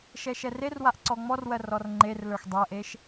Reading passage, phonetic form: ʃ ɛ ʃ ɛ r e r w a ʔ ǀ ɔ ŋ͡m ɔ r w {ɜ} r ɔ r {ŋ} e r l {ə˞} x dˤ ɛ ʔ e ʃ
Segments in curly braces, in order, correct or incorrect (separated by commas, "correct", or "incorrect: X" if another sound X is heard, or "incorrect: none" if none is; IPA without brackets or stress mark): correct, incorrect: ŋ͡ǃ, correct